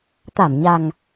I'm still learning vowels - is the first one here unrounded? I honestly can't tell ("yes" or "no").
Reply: yes